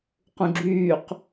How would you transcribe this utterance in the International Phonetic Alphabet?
q ũ ɡ͡ǁ yː q

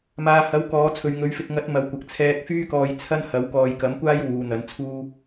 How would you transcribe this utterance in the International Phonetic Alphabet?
m aː˨ h ɐ˨˥ w k ɔː˨˧ t͡sʰ ɵ˨ ɥ ŋ ɵ˨˥ ɥ f ɪ˧ k̚ ŋ ɐ˨˥ t̚ m ɐ˨ w kʷ ɐ˨ k̚ t͡sʰ ɛː˧ k̚ f yː˥ k ɔː˧ j t͡sʰ ɐ˥ n h ɐ˨˥ w k ɔː˨ j k ɐ˨˥ m kʷ aː˥ j w uː˨˧ n̪ ɐ˨˥ n t͡sʰ uː˥

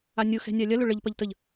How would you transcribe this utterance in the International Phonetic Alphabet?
a nʲ ʊ x ɛ̤ nʲ a lʲ ɐ l ʊ ɭ ə ʎ p ɐ ʎ t ə ʎ

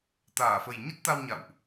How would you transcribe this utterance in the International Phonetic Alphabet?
t̪ aː˧˩ f ə˨˩ j ɲ ə˦˥ t̚ t̪ a˧ w ɲ a̰˧˨ w ʔ

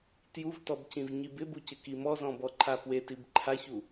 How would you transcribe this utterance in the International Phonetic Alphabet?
t j u v t ɔ b c ĩ v ɲ i b ɪ b u c ɪ k i m ɔ z ɔ̃ b ɔ ǃʰ a p w e t i b ǃʰ a ç u

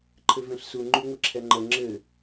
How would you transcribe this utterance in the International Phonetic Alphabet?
ǃʰ ɘ v ɛ̃ ɬ s u ŋ͡ǃ y ŋʷ ɘ ǁʰ ɛ ŋ͡ǃ ə ŋ͡ǁ ɘ

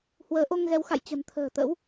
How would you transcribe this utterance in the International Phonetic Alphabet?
h w əː˨˦ ʔ o˧ ŋ ɣ ɛ˨˦ w x a̰˧˨ j t͡ɕ ə̤˨˩ n t̪ʰ ə̤ː˨˩ t̪ ə̰˧˥ w

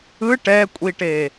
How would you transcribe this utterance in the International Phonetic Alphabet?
ɯ ʈ ɛ kʷʼ i ʈ e

